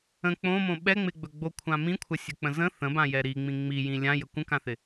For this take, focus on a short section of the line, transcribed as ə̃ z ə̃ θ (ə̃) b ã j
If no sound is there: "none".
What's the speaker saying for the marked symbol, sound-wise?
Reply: ə̃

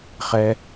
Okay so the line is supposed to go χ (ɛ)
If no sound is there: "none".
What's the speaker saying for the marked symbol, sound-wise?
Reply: ɛ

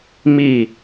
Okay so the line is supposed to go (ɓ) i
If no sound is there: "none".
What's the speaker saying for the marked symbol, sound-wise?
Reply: m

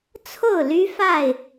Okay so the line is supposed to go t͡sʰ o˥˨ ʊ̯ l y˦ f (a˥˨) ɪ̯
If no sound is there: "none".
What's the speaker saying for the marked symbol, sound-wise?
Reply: a˥˨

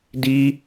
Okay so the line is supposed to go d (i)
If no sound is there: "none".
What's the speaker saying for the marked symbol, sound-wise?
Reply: i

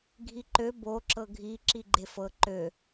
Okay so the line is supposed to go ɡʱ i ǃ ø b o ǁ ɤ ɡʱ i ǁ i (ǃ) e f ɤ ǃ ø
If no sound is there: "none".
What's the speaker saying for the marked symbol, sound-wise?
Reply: ɡ͡ǃ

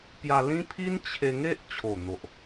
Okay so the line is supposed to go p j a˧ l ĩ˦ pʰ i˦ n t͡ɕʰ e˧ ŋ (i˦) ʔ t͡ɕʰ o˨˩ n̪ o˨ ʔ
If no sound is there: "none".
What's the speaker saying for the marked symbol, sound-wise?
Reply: e˦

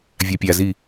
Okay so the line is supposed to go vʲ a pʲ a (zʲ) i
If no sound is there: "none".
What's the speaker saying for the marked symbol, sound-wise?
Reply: z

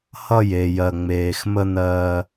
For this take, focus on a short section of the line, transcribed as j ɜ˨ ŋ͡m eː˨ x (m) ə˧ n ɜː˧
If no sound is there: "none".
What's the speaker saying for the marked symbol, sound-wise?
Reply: m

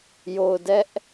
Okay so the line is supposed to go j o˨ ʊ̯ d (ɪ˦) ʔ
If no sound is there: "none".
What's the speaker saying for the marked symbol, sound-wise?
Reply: ɛ˦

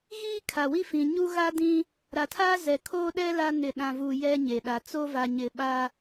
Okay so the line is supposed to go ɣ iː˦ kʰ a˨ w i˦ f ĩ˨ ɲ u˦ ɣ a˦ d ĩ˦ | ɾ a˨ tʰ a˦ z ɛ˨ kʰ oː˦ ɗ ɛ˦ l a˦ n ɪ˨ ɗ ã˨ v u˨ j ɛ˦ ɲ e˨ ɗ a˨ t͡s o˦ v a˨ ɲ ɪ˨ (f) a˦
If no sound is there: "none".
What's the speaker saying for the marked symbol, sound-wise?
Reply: ɓ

